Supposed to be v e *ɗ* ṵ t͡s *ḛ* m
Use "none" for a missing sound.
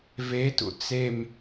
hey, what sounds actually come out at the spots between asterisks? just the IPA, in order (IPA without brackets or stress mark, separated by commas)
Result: t, e